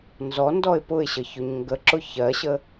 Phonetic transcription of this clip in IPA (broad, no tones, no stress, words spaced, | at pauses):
nzɔndɔɪ̯ pʊɪ̯ɕə çɵɲŋɡəǁʊ çɜɕə